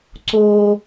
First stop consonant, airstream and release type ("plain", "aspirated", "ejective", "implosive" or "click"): click